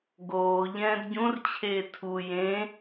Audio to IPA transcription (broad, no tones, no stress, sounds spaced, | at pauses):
ɡ oː ʎ ɛ̃ː d ɟ ũ r t͡ɕʰ eː tʰ u j ẽ